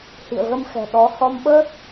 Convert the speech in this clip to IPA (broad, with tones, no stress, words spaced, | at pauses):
hḭ˧˨ə̯ɣə˧mxɛ̤˨˩ ɗɔ˨˦ hɔ˧mɓəː˦˥t̚